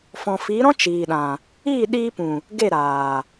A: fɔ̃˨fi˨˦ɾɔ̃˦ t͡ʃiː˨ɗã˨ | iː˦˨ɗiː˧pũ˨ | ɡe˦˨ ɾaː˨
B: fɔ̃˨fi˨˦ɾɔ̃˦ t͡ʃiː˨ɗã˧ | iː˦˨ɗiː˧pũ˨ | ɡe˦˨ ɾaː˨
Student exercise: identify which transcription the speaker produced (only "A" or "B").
A